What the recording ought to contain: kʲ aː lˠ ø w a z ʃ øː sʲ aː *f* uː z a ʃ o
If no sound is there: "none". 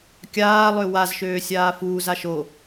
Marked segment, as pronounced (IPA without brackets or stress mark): f